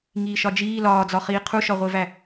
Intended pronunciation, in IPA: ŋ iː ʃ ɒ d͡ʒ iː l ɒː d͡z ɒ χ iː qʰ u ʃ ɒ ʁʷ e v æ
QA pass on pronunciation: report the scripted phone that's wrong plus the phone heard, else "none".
none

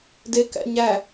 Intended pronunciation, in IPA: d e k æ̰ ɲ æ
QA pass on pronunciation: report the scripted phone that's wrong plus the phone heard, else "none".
none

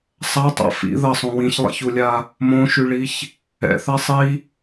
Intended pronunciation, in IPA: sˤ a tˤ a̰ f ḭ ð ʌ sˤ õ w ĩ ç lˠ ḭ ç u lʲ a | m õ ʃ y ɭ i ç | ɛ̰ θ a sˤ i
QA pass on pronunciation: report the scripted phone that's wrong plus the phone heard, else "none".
none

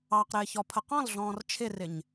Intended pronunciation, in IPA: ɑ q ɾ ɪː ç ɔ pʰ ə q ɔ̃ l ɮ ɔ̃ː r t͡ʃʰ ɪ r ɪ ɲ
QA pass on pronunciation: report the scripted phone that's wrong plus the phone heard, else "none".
none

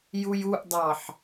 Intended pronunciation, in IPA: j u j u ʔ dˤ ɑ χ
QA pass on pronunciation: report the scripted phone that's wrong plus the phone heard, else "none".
χ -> ħ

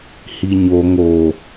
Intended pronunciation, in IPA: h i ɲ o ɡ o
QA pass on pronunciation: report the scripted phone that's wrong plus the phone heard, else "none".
ɡ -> ŋ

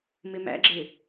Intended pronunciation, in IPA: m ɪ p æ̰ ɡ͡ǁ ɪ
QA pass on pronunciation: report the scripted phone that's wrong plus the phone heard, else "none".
p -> m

